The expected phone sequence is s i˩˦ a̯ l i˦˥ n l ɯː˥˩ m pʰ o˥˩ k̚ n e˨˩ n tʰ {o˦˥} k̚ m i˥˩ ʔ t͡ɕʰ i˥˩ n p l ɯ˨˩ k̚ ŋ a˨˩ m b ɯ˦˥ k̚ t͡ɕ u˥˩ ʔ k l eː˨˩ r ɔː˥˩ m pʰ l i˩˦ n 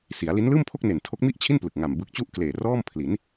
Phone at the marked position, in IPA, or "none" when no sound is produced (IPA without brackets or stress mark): o˦˥